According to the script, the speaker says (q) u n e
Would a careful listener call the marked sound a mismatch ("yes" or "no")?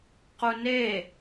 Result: no